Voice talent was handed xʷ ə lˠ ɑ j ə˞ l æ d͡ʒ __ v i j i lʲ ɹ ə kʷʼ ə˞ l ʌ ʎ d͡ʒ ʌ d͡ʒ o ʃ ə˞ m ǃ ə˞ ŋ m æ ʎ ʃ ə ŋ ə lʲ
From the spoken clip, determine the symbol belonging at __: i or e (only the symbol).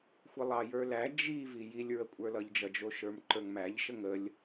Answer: i